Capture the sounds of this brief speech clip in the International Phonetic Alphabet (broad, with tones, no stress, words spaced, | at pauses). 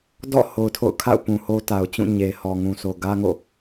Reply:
dɔ̰˦˨ ho˨ʊ̯tʰo̰˦˨ʊ̯ kʰa̰˦˨ʊ̯ pũ˨ho˦ta˨ʊ̯t͡ɕũ˦˨ ɲe˨hɔ˨ ŋũ˨so˨ ɡä˦ŋo̰˦˨